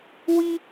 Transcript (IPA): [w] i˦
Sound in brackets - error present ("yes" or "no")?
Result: no